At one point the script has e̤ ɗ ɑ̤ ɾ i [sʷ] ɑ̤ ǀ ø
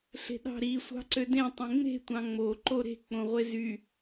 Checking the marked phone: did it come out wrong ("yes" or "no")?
no